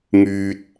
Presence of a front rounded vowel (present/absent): present